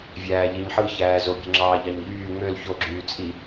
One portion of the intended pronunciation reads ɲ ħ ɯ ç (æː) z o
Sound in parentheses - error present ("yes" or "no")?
no